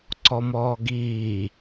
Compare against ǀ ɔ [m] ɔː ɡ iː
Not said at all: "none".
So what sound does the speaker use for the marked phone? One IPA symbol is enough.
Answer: m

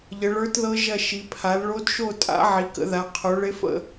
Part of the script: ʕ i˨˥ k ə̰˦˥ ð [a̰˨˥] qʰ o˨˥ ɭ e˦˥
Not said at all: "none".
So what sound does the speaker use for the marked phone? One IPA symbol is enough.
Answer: a˨˥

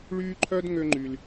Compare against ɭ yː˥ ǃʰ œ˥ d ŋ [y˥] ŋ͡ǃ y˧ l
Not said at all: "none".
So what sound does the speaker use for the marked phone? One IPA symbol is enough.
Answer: ø˥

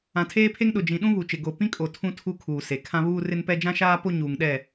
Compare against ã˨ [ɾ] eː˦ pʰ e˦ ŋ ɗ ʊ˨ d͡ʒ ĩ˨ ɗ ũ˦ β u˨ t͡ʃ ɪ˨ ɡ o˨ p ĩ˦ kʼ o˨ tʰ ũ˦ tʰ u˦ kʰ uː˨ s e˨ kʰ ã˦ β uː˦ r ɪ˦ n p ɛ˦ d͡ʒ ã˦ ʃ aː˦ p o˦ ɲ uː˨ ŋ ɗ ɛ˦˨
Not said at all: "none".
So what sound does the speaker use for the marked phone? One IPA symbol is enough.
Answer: tʰ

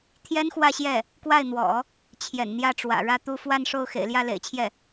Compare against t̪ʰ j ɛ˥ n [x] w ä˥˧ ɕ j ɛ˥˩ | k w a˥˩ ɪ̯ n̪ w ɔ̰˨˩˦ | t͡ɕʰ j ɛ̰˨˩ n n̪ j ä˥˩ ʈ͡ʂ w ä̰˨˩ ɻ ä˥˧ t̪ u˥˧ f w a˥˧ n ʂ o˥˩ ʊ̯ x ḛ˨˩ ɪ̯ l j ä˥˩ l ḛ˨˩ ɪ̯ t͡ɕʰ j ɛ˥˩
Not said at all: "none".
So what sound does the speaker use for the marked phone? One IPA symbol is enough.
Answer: x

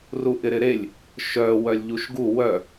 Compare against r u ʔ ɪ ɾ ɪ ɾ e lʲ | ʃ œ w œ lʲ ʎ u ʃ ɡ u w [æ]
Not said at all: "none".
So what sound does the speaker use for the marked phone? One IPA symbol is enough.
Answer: œ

